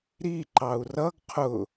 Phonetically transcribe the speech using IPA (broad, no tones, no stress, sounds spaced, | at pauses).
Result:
ɾ i ǃ ɑ u̯ r ʌ ɡ qʰ ʊ